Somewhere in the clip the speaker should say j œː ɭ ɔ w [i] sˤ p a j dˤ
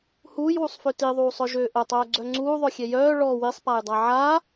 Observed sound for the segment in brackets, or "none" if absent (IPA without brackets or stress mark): i